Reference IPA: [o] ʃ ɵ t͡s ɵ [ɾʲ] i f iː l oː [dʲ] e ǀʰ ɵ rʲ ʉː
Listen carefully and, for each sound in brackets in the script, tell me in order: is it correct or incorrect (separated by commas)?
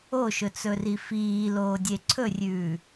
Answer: correct, incorrect, correct